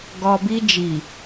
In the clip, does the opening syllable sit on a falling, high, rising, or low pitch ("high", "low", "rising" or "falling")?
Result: low